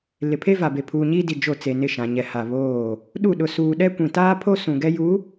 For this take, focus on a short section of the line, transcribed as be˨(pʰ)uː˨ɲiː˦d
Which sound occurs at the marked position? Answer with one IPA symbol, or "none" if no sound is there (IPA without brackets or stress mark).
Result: pʰ